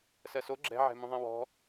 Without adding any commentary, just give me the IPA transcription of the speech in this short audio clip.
s ɜ s o ɡ͡ǁ ɛ̤ ʕ ɛ̤ m ũ ðˤ ɛ̃ w ɔ̤

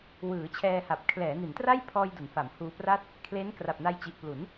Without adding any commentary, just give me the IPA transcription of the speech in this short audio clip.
w ɯː˩˦ t͡ɕʰ ɛː˧ h a˨˩ p̚ kʰ l ɛː˩˦ n i˩˦ n t r a˥˩ j pʰ ɔː˧ j d u˩˦ n f a˩˦ m h uː˧ p r a˥˩ t̚ | kʰ l e˦˥ n k r a˨˩ p̚ n a˧ j t͡ɕ i˨˩ ʔ p l u˩˦ n

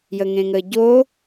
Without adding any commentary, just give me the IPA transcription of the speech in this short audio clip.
j ə ŋ ẽ ŋ ə ɟ o

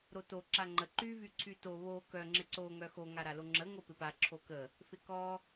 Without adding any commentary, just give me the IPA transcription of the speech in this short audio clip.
ɾ o t o ǁ a ŋ͡ǃ ə ǃ y v y ǀʰ y t o β o k œ ŋ͡ǁ ɪ ǀ o ŋ œ x o ŋ a ɾ a l o ŋ͡ǁ ə ŋ o p ɪ p a ǁʰ o k ə | f ɪ k ɔ

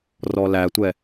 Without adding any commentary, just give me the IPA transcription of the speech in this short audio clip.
r ɔ l æ tʷ ɛ

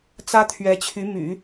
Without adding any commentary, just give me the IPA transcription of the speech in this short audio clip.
t͡s ä˥ t̪ʰ ɥ ɛ˧˥ t͡ɕʰ y˧˥ m y̰˨˩˦

